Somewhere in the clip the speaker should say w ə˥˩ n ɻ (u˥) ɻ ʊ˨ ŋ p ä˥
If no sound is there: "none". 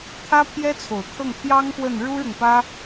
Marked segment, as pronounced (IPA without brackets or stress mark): u˥